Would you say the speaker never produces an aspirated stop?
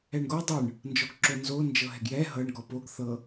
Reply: yes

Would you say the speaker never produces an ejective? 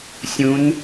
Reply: yes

